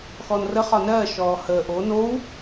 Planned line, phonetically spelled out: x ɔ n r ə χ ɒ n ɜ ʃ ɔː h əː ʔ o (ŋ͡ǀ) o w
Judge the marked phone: incorrect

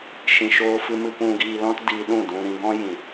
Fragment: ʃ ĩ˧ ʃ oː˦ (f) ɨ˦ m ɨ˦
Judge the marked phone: correct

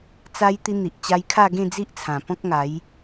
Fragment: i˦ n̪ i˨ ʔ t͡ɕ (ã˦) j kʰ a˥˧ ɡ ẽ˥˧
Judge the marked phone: incorrect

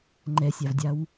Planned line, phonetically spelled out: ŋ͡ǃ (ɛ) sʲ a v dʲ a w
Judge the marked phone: correct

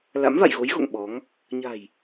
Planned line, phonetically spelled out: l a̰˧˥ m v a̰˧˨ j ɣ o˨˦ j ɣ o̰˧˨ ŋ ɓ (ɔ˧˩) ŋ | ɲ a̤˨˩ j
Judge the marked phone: incorrect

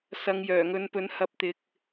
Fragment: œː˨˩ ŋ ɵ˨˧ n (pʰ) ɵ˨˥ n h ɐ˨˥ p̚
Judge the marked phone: incorrect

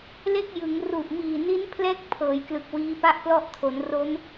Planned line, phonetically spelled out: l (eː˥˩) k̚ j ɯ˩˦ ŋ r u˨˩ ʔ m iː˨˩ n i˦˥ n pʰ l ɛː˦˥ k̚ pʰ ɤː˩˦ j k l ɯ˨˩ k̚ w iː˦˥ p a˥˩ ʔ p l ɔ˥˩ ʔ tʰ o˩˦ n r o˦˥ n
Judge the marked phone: incorrect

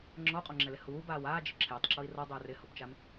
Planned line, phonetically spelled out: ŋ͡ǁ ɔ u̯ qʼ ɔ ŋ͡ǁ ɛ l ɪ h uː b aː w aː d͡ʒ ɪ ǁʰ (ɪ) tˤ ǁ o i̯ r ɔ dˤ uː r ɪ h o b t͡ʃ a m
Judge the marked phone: incorrect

